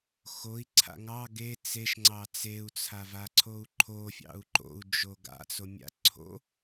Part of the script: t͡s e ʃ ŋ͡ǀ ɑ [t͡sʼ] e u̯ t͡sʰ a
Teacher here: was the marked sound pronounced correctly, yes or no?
no